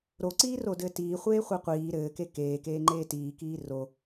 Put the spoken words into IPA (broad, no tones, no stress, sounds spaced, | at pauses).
ɾ o ǀ iː r o d ɘː t iː χʷ eː χʷ e qʷ iː ɾ ɘː k e k eː k eː ŋ͡ǃ eː t iː k iː r o